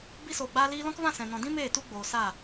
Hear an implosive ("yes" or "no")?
no